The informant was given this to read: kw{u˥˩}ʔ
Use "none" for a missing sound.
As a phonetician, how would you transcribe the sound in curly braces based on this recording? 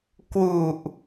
u˨˩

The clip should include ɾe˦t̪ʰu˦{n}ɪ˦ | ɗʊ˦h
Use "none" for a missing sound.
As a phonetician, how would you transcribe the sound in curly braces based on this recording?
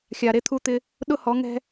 t̪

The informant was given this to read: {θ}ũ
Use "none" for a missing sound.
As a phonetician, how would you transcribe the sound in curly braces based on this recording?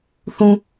θ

